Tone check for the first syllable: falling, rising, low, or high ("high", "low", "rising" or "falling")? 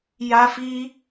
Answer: high